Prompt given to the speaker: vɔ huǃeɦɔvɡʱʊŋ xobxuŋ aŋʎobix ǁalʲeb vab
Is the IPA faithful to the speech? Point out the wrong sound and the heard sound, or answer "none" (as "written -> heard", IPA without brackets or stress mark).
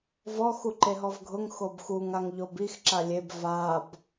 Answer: h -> x